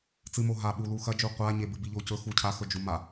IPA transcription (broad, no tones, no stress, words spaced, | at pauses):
t͡sɨmo ɦa ɓulu xɐd͡ʒu qʷaɲebɨ biʎocɵ xucʰaxɵ d͡ʒuma